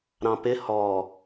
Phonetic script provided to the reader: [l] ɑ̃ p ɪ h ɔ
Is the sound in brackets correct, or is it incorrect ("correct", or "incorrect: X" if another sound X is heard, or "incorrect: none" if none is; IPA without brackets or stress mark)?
incorrect: ɾ